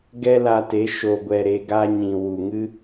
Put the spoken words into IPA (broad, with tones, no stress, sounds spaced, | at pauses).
ɡ ɛ˦ l a˧ t e˨˦ ʃ o˨ ɡʷ ɛ˨ ɾ e˧ ɡ a˦ ɲ ĩ˨ w u˨ ŋ ɨ˦